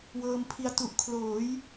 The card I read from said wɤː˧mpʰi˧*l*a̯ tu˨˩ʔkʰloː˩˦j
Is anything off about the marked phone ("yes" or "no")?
yes